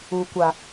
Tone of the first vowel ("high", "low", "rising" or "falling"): low